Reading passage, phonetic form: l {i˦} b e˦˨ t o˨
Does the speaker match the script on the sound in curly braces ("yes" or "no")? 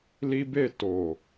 yes